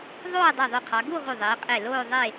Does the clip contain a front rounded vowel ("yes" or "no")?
yes